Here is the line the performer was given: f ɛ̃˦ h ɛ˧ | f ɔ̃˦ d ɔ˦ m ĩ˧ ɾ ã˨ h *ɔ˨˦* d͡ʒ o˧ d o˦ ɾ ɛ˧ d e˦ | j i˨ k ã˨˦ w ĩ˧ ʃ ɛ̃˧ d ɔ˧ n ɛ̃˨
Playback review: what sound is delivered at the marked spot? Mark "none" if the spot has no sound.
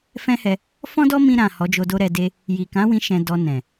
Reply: ɔ˨˦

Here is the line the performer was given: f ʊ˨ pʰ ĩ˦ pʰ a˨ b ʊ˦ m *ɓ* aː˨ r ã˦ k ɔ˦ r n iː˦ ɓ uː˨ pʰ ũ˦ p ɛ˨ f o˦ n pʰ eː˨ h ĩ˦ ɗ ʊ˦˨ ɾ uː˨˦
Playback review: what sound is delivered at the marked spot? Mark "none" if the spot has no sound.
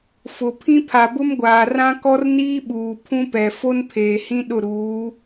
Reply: ɡʷ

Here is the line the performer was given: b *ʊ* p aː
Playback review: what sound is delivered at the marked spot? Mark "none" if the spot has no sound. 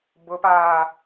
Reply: ʊ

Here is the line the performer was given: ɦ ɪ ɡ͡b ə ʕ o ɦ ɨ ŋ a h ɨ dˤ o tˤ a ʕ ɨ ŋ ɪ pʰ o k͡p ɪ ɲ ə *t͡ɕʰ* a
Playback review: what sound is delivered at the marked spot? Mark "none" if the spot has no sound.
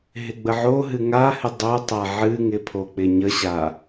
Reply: ɕ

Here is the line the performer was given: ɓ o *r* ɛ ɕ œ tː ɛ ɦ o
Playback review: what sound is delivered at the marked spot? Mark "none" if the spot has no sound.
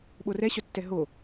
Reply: r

